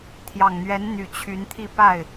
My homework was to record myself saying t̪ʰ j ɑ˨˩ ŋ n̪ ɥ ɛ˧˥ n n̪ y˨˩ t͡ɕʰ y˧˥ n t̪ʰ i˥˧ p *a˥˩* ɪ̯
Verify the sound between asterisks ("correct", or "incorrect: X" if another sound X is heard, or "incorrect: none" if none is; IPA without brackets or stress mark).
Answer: correct